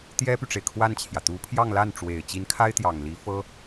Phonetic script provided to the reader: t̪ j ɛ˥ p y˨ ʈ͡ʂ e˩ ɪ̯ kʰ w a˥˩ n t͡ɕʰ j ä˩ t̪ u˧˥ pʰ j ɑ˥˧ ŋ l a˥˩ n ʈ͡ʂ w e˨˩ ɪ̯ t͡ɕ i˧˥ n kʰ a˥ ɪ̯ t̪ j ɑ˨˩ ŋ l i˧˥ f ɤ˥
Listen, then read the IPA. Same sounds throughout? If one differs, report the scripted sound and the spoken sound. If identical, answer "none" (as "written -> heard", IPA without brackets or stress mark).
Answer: none